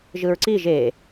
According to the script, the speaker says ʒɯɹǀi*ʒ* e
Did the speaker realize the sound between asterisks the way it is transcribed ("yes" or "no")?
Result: yes